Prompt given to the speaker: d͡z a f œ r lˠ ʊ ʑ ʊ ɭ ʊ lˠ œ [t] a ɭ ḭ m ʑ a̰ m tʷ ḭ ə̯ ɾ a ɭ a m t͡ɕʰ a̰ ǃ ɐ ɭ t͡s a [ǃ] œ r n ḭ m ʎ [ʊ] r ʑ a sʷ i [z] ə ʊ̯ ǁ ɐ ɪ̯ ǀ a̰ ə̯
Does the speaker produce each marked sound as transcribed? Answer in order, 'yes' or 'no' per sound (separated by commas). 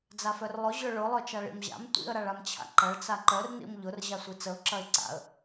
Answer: no, yes, yes, no